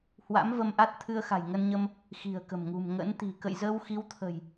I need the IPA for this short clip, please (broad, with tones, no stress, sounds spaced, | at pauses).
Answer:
h w a̰˧˥ m v ə˧ m ʔ a˦˥ t̚ t̪ʰ ɨ˧ ə̯ x a̤˨˩ j ŋ ə˧ n ɲ ə˧ m | x i̤˨˩ ə̯ k ə̤˨˩ m ŋ ṳ˨˩ m ŋ ə̰˧˥ n t̪ i̤˨˩ k ə̰˧˨ j z əː˧ w x i˨˦ w t̪ʰ ə̤˨˩ j